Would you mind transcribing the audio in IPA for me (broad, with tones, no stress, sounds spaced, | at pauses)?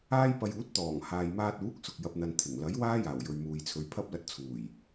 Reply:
aː˥ j p ɐ˧ j uː˨˥ t̚ t̪ ɔː˨˩ ŋ h aː˧ j m aː˥ t̚ uː˨˥ k̚ s ʊ˨ k̚ j ɐ˨ p̚ n̪ ɐ˨ n t̪ʰ ɪ˨˩ ŋ l ɐ˨˥ j w aː˥ j aː˨˩ w j ɵ˨ ɥ m uː˨ j t͡sʰ ɵ˨˧ ɥ pʰ ɐ˥ p̚ l ɐ˧ t̚ t͡sʰ uː˨˩ j